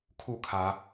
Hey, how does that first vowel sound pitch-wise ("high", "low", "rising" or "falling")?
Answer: falling